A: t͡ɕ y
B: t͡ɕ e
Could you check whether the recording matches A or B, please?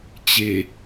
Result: B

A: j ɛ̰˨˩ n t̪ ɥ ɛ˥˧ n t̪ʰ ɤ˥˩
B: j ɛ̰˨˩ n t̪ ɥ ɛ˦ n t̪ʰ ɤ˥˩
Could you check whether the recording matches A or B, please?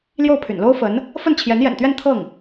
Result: A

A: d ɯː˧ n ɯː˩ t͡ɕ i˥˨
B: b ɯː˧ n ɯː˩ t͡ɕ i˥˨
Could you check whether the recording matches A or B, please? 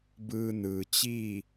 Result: B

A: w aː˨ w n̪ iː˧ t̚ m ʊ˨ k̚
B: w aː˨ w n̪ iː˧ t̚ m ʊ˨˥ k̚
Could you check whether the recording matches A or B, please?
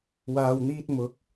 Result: B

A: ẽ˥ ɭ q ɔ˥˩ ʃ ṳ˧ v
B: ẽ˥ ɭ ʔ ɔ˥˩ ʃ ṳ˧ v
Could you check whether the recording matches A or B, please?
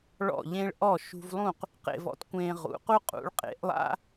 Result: B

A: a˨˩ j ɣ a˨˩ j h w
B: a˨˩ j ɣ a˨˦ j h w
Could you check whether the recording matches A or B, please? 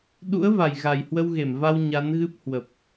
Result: A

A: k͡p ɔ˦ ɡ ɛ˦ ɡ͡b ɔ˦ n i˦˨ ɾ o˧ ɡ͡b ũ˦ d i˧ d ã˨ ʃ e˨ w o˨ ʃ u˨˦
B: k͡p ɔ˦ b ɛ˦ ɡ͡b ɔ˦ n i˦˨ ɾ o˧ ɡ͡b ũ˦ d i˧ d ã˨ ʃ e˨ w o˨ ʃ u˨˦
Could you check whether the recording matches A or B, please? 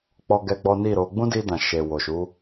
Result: A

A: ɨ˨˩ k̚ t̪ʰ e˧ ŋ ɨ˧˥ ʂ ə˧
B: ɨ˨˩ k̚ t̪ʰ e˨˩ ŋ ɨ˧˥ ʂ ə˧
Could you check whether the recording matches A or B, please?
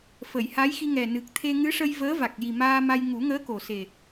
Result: A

